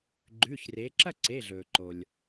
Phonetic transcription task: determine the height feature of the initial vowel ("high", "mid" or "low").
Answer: high